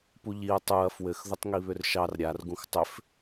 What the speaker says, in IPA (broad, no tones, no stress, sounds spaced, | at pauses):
p u ʎ i ɐ̯ tˤ u ɐ̯ f w ɘ x ð ʊ tˤ ŋ i β ʏ r ʃ ɑ r ɾʲ a r ɡ ũ x tˤ ʏ f